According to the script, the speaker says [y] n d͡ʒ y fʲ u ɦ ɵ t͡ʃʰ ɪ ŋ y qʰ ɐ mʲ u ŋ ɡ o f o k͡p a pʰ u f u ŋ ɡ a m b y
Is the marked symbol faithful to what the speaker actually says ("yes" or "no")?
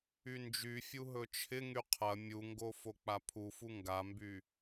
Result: yes